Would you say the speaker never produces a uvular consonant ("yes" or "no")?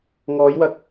yes